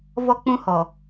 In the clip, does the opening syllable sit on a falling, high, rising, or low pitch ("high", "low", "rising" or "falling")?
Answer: high